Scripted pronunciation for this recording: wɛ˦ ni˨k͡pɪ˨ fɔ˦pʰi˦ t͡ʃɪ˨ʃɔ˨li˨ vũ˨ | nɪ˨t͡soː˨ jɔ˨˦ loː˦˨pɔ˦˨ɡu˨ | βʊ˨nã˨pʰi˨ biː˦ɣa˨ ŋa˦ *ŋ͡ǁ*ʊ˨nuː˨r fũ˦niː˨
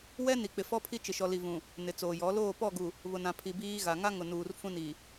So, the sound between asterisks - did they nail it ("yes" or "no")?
no